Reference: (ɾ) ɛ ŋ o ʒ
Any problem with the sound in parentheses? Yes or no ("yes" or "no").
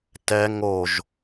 yes